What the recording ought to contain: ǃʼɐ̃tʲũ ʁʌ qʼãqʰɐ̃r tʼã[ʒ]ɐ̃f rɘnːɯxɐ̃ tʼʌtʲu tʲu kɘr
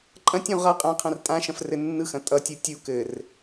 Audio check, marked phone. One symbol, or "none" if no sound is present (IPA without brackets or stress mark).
ʃ